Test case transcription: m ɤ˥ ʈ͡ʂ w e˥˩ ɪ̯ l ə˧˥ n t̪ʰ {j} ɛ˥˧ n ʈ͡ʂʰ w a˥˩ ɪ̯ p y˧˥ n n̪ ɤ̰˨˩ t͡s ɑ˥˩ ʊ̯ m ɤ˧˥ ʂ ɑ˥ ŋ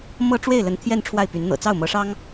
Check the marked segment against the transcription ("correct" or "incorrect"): correct